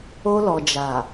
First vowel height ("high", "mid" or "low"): mid